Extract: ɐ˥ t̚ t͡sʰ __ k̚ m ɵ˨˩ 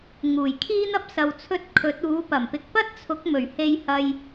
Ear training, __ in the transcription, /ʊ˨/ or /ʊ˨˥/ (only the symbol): ʊ˨˥